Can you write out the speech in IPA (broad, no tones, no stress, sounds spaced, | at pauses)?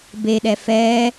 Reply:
b e ɗ ɛ f ɛː